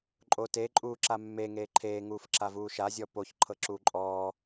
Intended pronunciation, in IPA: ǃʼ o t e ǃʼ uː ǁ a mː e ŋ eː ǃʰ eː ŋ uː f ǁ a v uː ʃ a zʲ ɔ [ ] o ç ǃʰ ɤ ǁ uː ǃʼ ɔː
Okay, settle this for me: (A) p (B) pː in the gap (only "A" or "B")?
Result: A